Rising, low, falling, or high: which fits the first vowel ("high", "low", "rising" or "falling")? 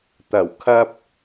low